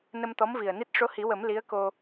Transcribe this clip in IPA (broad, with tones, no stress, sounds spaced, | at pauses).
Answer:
n ə˧ m t̪ ɔ˧˥ m v i˨˩ ə̯ n i˦˥ t̚ ʂ o˧˥ h i˨˩˦ w ə˨˩˦ m l i˧˥ ə̯ k o˧